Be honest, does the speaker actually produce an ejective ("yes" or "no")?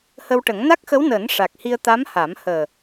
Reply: no